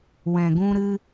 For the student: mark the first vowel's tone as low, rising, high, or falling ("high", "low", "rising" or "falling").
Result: low